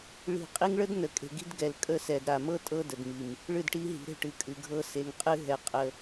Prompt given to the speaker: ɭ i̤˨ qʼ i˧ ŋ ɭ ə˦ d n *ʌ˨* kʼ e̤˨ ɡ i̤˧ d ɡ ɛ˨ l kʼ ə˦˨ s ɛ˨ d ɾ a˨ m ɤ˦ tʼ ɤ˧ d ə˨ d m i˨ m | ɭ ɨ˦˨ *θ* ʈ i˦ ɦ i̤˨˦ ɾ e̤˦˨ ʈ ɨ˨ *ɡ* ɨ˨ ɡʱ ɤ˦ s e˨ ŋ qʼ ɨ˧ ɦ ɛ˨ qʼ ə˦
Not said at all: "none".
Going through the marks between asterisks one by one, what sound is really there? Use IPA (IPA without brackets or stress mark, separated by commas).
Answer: ə˨, d, kʼ